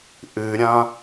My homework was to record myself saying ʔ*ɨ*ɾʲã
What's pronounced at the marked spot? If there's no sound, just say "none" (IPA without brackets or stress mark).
ɨ